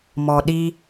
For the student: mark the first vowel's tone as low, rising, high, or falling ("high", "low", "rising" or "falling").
low